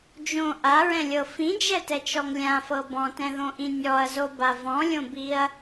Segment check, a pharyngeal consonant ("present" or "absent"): absent